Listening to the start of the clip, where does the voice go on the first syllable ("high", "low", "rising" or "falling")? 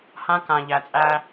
high